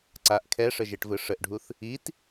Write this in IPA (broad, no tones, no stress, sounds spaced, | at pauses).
ǀ a ʔ kʰ ɛ ʂ ə ʒ e ʈ v ɯ ʂ ə ʔ ɖʱ u θ | i t